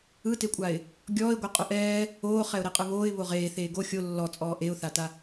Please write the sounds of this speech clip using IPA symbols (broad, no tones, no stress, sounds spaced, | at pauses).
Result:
ɯ t e kʷʼ a ɪ̯ | ɡʲ ɔː ɪ̯ ɡʷ ɛ qʼ o ʔ ɛː | oː χ ɛ ʊ̯ ɾ e qʼ ɯ β oː ɪ̯ β o ʁ eː θ eː ɡ o xʲ o lː ɔ t͡sʼ ɔː ʔ e ʊ̯ θ a t a